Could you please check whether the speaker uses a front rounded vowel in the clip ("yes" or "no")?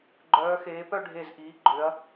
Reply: yes